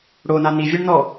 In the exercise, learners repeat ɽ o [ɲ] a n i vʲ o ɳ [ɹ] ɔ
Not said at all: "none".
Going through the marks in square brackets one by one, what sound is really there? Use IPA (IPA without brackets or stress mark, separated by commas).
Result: n, n